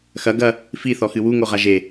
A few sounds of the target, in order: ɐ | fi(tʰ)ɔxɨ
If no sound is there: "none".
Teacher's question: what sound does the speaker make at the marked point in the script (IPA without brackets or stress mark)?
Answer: θ